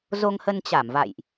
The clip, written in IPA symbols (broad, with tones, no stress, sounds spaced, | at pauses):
z o˧ ŋ h ə˧ n t͡ɕ a˧˩ m v a̰˧˨ j ʔ